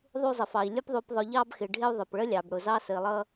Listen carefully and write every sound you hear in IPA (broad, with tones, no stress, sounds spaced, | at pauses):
ðˤ u˧ zˤ ə˨ f ɑ˨ i̯ lʲ ʊ˧ p ðˤ u˨ p ðˤ ʊ˨ ʎ ɑ˧ b x ɪ˨ ɖʱ ɪ˧ u̯ ðˤ ʊ˨ p ɭ ə˦ lʲ ɑ˨ b ɽ ʊ˨ z ɑ˧ s ə˨ i̯ lˠ ʌ˧